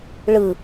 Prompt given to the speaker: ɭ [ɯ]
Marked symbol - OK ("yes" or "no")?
yes